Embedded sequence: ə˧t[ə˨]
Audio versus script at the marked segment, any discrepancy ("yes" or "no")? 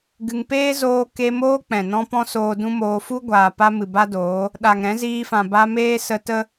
yes